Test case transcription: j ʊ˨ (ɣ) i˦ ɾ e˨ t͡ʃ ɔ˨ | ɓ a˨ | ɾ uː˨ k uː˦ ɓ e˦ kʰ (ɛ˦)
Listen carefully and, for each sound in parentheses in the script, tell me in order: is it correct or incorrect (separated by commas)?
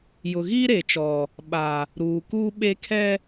correct, correct